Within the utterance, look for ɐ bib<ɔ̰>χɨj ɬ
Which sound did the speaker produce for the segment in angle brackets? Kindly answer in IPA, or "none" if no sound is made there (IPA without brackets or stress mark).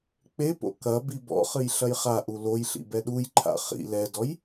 ɔ̰